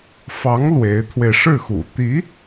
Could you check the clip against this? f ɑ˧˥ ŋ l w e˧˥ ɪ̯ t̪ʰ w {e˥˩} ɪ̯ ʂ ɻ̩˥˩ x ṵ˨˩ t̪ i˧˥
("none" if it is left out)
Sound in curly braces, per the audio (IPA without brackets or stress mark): e˧